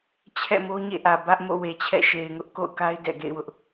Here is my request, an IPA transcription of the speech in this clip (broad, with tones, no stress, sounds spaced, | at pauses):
t͡ɕʰ ɛ̰˦˨ m o˦ ɲ ḛ˦˨ ʔ ä˨ b ä˦ ʔ m o̰˦˨ w e˨ t͡ɕʰ ɛ̰˦˨ ʃ e˨ ɪ̯ ŋ ʊ˦ ʔ k o̰˦˨ ʊ̯ k a˦ ɪ̯ d ɛ̰˦˨ ɡ ḛ˦˨ ɪ̯ w ʊ˦ ʔ